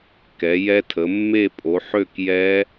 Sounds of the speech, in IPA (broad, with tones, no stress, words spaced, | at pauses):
kɛ˨˦ jɛ˦˥tʰə˨˦ mːe˥˧pʼo˨˦ ħø˥˧kjɛ˦˥